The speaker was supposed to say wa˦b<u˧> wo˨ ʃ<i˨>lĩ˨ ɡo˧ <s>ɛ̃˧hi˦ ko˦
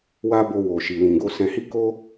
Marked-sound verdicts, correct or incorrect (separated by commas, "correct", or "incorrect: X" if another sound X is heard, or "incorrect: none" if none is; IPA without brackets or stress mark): incorrect: o˧, correct, correct